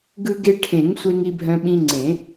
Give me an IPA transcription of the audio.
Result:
ɡ ɯ˧ ɡ e˧ ʈʰ ẽ˨˩˦ ŋ sʷ e˧ ŋ i˧ bʱ œ̃˧ ɓ ĩ˧ ŋ͡ǀ ẽ˨˩˦

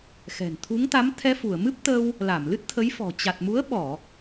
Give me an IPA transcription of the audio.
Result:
x ɛ̤˨˩ n t̪ʰ u˨˦ ŋ t̪ a˨˦ m t̪ʰ ɛ˧ f u˧˩ ə̯ m ɨ˦˥ p̚ t̪ əː˧ w | l a˧˩ m l ɨ˦˥ t̚ t̪ʰ ə˨˦ j f ɔ̤˨˩ t͡ɕ a˨˩ t̚ m u˨˦ ə̯ ɓ ɔ˧˩˨

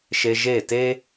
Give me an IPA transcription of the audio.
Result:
ʃ e˧ ʒ eː˦˨ t e˦

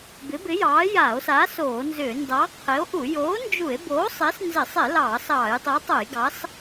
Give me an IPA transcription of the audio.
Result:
b ɪ˨˥ b ɪ˨˥ j ɑː˨˥ j aː˧˩˧ o̯ s aː˨˥ s oː˧˩˧ n z ʏː˧˩˧ n d ɑ˨˥ qʰ ɪ˨˥ o̯ ʔ u˧˩˧ j oː˨˥ n d͡ʒ u˧˩˧ e̯ b oː˨˥ sˤ ɪː˨˥ s n z ɪ˧˩˧ sˤ ɪ˧˩˧ l ɑː˧˩˧ s ɑː˧˩˧ j tˤ u˨˥ tˤ o˧˩˧ j ɡ ɑ˨˥ s

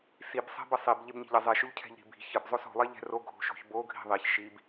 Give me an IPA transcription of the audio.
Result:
s i b sˤ e̤ b ə sˤ i b ʎ e b ɲ i̤ ʎ ə zˤ e ʃ o ʎ cʰ ɛ̤ ʎ ɾ i̤ b i̤ ç ə b zˤ o s o̤ lˠ e ʎ ɛ̤ r o ɡʱ o̤ ʃ o̤ ç b o ɡʱ i̤ ðˤ i ç ʃ i b

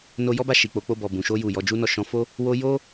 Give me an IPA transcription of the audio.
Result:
n o˧ j ɔ˦ b a˦˨ ʃ i˨ k͡p o˨˦ k͡p o˧ b ɔ˨ b ũ˨ ʃ o˧ j u˨ j ɔ˨˦ d͡ʒ u˦ n ɔ˦˨ ʃ ɔ̃˨˦ f o˦ | w o˧ j o˦

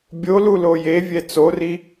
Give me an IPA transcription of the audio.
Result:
bʲ o l u l o j e vʲ ɛ t͡s o r i

